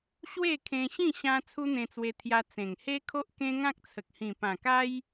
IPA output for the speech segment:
ɕ w e˥˧ kʰ ẽ˧ ɕ ĩ˥˧ ɕ ã˦ t͡sʰ u˦ n̪ ẽ˧ t͡s w e˧ t̪ʰ j a˧ t͡s ẽ˨˩ ŋ h e˦ kʰ o˦ ʔ k ẽ˦ ŋ ã˦ k̚ t͡sʰ ə˨ k̚ h ĩ˨˩ p ã˨˩ k a˦ j

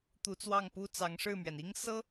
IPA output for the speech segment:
t̪ u˧˥ t͡s w ɑ˥˩ ŋ p u˥ t͡s ɑ˧˥ ŋ ʂ ɻ̩˥˩ m ɥ ɛ˩ n i˥ ŋ s ɤ˥

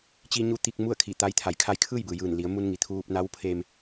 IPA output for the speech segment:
t͡ɕ i˧ ɲ u˧ t̪ i˧ k̚ m u˥˨ ə̯ kʰ i˧˩ t̪ a˧ j t̪ʰ a˩˧ j kʰ a˧ j kʰ ɯː˥˨ j b ɯː˩ j ɯː˧˩ n l i˩˧ ə̯ m u˧ n ŋ i˩˧ t̪ʰ uː˧ p̚ n a˧˥ w pʰ e˧ m

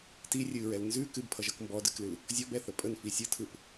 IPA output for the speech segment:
t i rʲ ɨ ɹ ɛ l n z ʉ k ɨ b pʰ ʌ ʒ ʌ k m b ɔ d ɨ k l ɨ l | zʲ ɔ b ɛ θ ə pʼ ə n f i sʲ ɯ tʰ ɯ p

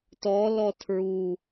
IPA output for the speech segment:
t ɔ l ɔ tʰ ɹ u

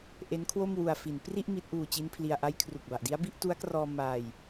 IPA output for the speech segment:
ʔ e˦˥ n kʰ w o˥˩ m w u˧ a̯ f i˩˦ n p r i˥˩ ʔ m i˦˥ t̚ ʔ uː˧ t͡ɕ i˦˥ n pʰ l i˧ a̯ ʔ a˦˥ j kʰ r u˨˩ k̚ b a˨˩ ʔ d i˦˥ a̯ b i˥˩ ʔ t u˦˥ a̯ k r ɔː˧ m aː˧ j

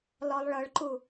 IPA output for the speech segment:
l ɔ lˠ ɭ ɤ ɭ ǃ u

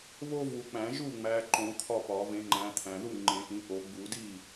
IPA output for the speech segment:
β o˦ v u˨˩˦ k͡p æ̃˨˩˦ ʒ u˥˩ ŋ͡m æ˨˦ ǃ õ˨˩˦ t̪ʰ ɒ˥˩ p ɒ˨˩˦ v ẽ˨˦ ŋ͡ǃ æ̃˨˦ t̪ʰ æ̃˨ ð u˥˩ ŋ͡ǃ ẽ˨˩˦ ʔ ĩ˨˦ ʔ o˨˩˦ ɡ͡b u˨˩˦ d i˥˩

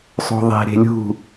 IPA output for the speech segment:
sˤ o̤ ðˤ e̤ ɾ e̤ lʲ ṳ

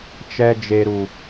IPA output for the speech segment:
t͡ʃ ɛ˨ d͡ʒ e˨ ɾ u˨

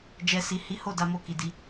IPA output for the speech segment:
d͡ʒ ɛ˨ s i˨ h i˨˦ h o˦˨ d a˧ m o˧ k i˨ d i˧

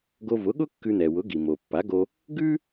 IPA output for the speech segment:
ɡ o˧ v ʊ˩˥ ɠ ʊ˥ kː ʉ˧ n̪ ɛ˩ w ʊ˩˥ ɡ i˩ m o˩ pː a˩˥ ɡ o˧ | ɡ ʉ˥

